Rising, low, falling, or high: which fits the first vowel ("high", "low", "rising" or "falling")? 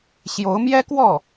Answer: rising